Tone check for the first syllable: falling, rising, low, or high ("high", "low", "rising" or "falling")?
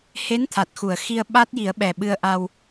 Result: rising